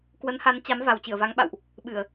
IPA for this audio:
k w ə˨˦ n h a˨˦ n t͡ɕ a˨˦ m v a˨˩ w t͡ɕ ɨ˧˩ ə̯ v a˨˦ ŋ ɓ a̰˧˨ w ʔ | ɓ ɨ˧˩˨ ə̯

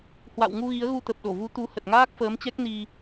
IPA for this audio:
h w a̰˧˨ w ŋ u˧ ɣ i˨˦ ə̯ ɣ u˧ t̪ ə˨˩ p̚ ɗ o˧˩ v u˨˦ t̪ u˨˦ h ə˨˩ t̚ ŋ aː˦˥ k̚ f əː˨˦ m t͡ɕ ɛ˦˥ k̚ n i˧

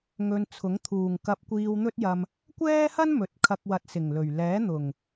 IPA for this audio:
ŋ ɵ˧ n t͡sʰ ʊ˨˥ ŋ t̪ʰ uː˨˩ ŋ k ɐ˧ p̚ kʷ iː˧ w n̪ ɵ˥ t̚ j ɐ˧ m | kʷ ɛː˥ h ɐ˥ n m ɵ˨ t̚ kʰ ɐ˧ k̚ w ɐ˨˥ t̚ s ɪ˨˩ ŋ l ɵ˨˩ ɥ l ɛː˨˥ n̪ ʊ˨˩ ŋ

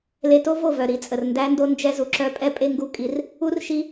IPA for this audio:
l e˧ t o˦ v o˦˨ v œ˨ ɾ i˨ t͡sʼ ə˨ r n d æ˧ n d o˧ n d͡ʒ ɛ˦ z u˧ ǁ œ˦ pʼ ɛ˦ pʼ e˦ ŋ ɡ u˦˨ kʼ i˦ r | u˦ r ʃ i˦

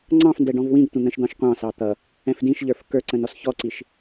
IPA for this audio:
ŋ͡ǀ ɑ̃ f n d ɛ ɖ ɔ̃ v w ĩ ɡ tʷ ə̃ n̪ ə̃ ʃ d̪ ɑ̃ ʃ qʷ ɑ̃ s ɑ t̪ ʌ | ɛ̃ f d ĩ ʃ ʎ ə˞ f k ə˞ ǀ ə̃ n ɔ s ç ɔ ǀ i ʃ

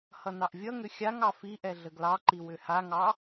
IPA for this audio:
h ʌ n ɑ ʔ vʲ ʌ ŋ ʏ xʲ a ŋ ɑ f i ʔ ɛ ɮ ə ɡ l ɑ ǃ i w ʏ h a ŋ ɑ

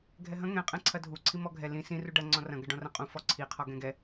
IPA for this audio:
ɡʱ ɛ ɦ ɐ̃ ŋ ɛ̃ qʼ ɛ̃ ǀʰ ɐ dʱ u ǀʰ i m ɔ ɡʱ ɛ l ĩ s ĩ r u ɖ ɐ ŋ͡ǀ ɔ̃ r ɐ̃ ɡ ɐ ɖ ɔ̃ r ɐ̃ qʼ ũ f ɔ ǀʰ i qʰ ɔ ɡ ɛ̃ ɡ ɛ

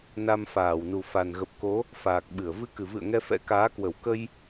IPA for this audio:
n a˧ m f aː˧˩ w n u˨˩ f a˨˩ n ɣ ə˨˩ p̚ k o˨˦ | f aː˨˩ k̚ ɓ ɨ˧˩ ə̯ v ɨ˧ k ɨ˧˩ v ɨ̰˧˨ ə̯ ŋ ɛ˧ f ɛ̰˧˥ k aː˨˦ k w ə˧˩ w k ə˧ j

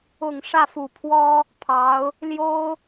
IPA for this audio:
ʊ˨˩ ŋ ʂ ä˥˩ f u˨˩ pʰ w ɔ˥ | pʰ ɑ˧˥ ʊ̯ | l j o˥ ʊ̯

